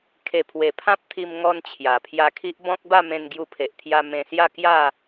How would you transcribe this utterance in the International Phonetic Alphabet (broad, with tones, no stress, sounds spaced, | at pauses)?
kʰ e˨˩ pʰ w e˨˩ pʰ ã˦ p̚ t̪ʰ i˧ m ŋ ɔ˧ n t͡ɕʰ j a˨˩ pʰ j a˧ kʰ i˦ ʔ b ɔ̃˦ k̚ b a˥˧ m ẽ˧ n ɡ j u˧ pʰ e˨ ʔ t̪ʰ j a˧ m ẽ˧ s j a˥˧ k j a˥˧